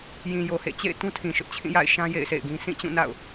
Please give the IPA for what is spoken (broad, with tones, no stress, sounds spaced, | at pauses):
j ĩ˨ j o˨ h ḛ˦˨ t͡ɕ ḛ˦˨ ɪ̯ t ũ˦ tʰ ĩ˨ ʃ ʊ˦ ʔ t͡ɕʰ ĩ˦˨ j a̰˦˨ ɪ̯ ʃ ã˦ j ḛ˦˨ ɪ̯ sʰ ḛ˦˨ ɪ̯ ɡ ĩ˦ s ĩ˦˨ t͡ɕ ũ˦˨ n a̰˦˨ ʊ̯